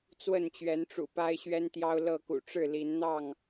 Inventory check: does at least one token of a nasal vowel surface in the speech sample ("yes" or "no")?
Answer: no